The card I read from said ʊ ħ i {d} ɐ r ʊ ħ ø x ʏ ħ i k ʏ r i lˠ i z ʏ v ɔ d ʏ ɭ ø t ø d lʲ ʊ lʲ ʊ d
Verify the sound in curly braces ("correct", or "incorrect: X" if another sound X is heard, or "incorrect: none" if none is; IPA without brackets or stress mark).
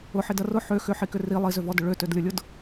correct